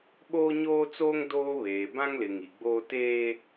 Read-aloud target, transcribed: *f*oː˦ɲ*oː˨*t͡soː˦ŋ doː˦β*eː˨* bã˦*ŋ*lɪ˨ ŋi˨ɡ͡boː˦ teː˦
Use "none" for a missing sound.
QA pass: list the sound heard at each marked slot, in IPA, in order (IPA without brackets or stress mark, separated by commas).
ɓ, oː˦, eː˨, ŋ